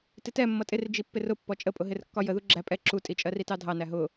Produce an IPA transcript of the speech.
t ɪ t ɛ mː ʌ tʼ ɪ r d͡ʒ i pː ɪ r ʊ pː ɔ t͡ʃʼ ə pʼ ʊ ɦ ɪ r kː ɒ j ə ð u ɡ͡ǁ æ pʼ ɛ ǁ u tʼ i t͡ʃʼ ɜ r i t ɑ dʱ ɑ n æ ɦ ʊ

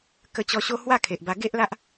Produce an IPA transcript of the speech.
k ə˧ t͡ɕ ɔ˧ ɕ o˦ h w a˥˧ kʰ e˨ ʔ b a˧ ɡ e˦ ʔ l a˦ ʔ

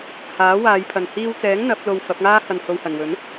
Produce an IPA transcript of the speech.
h aː˨˥ w aː˨˧ j pʰ ɐ˨ n h iː˧ w t͡s ɛː˨˥ ŋ n̪ ɐ˨˥ p̚ l o˧ w f ɐ˨˥ p̚ ŋ aː˥ h ɐ˨ n h o˨ w h ɐ˨˩ n w ɵ˨˥ n

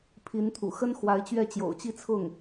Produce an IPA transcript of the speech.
pʰ i˧˥ n t̪ʰ ṵ˨˩ x ə˥ n x w a˧˥ ɪ̯ t͡ɕ ɥ ɛ˥˩ t͡ɕ j o̰˨˩ ʊ̯ t͡ɕ i˥˧ t͡sʰ ʊ˥˩ ŋ

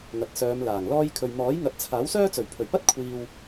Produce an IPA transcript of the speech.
ŋ ɐ˨ t̚ s œː˨˧ m l aː˨˩ ŋ l ɔː˥ j kʰ ɵ˨ ɥ m ɔː˨˥ j ŋ ɐ˨˥ t̚ t͡sʰ aː˨˥ w s œː˥ t͡s ɵ˨˩ ɥ pʰ ɵ˨˩ ɥ p ɐ˥ t̚ kʷʰ iː˧ w

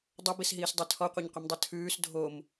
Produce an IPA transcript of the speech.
dˤ o b i s ɦ iː s dˤ e tʰ ɔ qʷ e ɲ qʷ ɨ m dˤ ɛ tʰ ʉː s dʱ o m

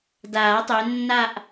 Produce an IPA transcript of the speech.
d aː˨˩˦ tˤ ø˨˦ nː a˥˧ ʔ

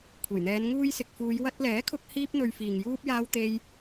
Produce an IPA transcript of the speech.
kʷʰ e˨˩ j n̪ ɛː˨˧ n ŋ uː˧ j s ɪ˨ k̚ f uː˨˧ j w ɐ˧ t̚ l ɛː˨˥ kʰ ʊ˧ k̚ h iː˥ p̚ n̪ ɵ˧ ɥ f iː˨ ŋ j uː˥ p̚ j aː˥ w t̪ e˥ j

